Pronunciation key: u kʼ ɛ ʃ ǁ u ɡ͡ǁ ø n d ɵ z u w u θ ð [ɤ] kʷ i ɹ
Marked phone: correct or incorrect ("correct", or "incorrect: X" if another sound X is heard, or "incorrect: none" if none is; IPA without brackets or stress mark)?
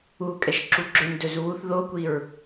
incorrect: o